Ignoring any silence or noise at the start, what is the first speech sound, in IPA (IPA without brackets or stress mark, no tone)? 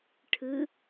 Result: ʈʰ